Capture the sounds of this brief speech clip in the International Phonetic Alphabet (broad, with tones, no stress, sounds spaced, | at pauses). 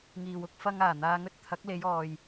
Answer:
ŋ iː˨ w ʊ˨˥ k̚ f ɐ˧ ŋ aː˨˩ n̪ aː˨ ŋ ɵ˧ t̚ t̪ʰ ɐ˨˥ k̚ l e˨˧ j ɔː˨ j